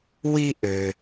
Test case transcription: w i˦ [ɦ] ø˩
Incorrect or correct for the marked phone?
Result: incorrect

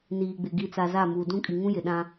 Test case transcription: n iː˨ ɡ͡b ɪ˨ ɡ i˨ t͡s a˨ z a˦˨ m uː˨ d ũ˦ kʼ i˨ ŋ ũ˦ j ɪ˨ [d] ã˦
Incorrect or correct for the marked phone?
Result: incorrect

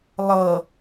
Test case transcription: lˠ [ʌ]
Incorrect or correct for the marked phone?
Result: correct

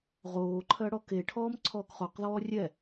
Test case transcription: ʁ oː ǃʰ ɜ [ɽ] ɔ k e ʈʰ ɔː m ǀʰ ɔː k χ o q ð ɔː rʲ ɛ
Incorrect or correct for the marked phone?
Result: correct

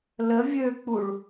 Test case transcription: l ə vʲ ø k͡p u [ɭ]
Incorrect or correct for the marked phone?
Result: correct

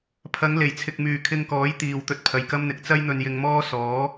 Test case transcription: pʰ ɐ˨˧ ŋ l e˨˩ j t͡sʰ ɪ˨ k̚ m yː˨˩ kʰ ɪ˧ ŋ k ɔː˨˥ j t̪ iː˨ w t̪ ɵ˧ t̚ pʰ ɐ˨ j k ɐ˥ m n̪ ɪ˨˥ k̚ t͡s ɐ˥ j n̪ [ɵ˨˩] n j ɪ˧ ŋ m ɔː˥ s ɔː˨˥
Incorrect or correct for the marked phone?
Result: incorrect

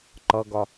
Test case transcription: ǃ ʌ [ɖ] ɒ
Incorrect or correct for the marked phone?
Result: incorrect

